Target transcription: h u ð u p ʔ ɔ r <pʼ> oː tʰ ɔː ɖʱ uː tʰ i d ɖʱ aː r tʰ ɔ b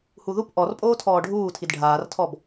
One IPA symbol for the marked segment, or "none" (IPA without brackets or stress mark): pʼ